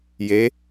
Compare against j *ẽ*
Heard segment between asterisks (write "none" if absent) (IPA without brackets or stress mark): e